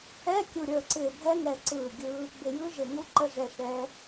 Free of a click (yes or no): no